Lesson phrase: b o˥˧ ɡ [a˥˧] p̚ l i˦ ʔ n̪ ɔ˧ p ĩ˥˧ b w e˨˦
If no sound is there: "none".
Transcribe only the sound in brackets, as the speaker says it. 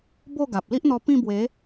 a˨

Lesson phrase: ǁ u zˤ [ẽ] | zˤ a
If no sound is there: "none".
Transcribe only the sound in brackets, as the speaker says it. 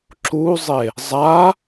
e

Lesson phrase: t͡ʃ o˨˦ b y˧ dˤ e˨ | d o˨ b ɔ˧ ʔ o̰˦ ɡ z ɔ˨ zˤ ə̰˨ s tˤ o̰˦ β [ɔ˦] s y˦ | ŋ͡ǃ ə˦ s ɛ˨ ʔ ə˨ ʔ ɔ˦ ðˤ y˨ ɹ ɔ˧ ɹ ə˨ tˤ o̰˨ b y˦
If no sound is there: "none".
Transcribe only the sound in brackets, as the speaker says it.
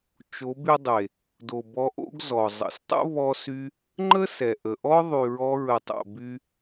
ɔ˦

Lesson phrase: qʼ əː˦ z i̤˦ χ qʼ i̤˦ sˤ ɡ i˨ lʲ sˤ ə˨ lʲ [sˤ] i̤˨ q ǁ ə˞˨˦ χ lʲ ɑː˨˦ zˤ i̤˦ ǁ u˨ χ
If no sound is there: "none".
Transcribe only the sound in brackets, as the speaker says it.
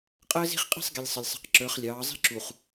sˤ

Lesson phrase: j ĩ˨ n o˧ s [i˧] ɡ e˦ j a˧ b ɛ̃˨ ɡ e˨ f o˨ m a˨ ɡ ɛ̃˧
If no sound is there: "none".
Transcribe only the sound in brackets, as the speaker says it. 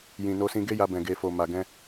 ĩ˧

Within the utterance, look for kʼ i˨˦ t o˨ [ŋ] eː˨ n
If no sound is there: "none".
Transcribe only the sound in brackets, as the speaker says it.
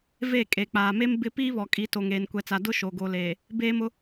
ŋ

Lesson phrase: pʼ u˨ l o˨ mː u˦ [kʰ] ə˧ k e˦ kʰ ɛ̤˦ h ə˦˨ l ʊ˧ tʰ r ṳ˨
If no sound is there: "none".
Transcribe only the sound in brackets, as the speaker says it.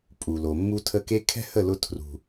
tʰ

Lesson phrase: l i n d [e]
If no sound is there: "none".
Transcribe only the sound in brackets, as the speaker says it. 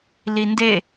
e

